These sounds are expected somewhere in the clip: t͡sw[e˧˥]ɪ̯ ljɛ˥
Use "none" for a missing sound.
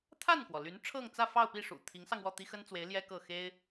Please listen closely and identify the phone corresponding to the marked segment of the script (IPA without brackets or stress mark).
e˧˥